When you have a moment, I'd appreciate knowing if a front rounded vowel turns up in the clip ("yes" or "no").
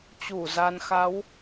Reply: no